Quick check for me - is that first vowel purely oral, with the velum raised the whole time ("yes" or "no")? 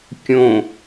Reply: no